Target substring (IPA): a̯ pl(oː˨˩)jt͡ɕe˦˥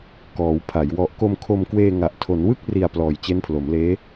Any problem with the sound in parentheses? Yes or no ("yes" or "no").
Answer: yes